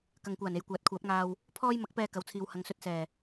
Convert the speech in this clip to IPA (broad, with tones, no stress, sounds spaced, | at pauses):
k ɐ˨ ŋ kʷ aː˨˩ n e˨˧ j kʷ aː˨˥ t̚ kʷʰ aː˨˥ p̚ ŋ aː˧ w | pʰ ɔː˥ j m ɐ˨˥ k̚ p ɛː˧ k ɐ˨˧ w t͡sʰ iː˨ w h ɐ˨˧ ŋ s ɵ˧ t̚ s ɛː˨˩